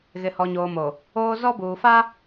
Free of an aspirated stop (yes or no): yes